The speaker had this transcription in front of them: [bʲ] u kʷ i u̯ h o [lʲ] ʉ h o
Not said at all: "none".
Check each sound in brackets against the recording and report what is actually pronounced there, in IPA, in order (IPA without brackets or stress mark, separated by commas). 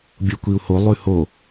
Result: bʲ, lˠ